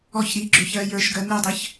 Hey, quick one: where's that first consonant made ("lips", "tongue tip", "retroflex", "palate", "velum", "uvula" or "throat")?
palate